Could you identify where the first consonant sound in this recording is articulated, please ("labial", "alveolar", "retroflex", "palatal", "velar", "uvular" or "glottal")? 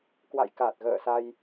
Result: velar